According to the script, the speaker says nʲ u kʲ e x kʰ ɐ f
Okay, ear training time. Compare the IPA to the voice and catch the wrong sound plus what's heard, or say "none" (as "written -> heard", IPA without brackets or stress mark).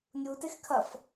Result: kʲ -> t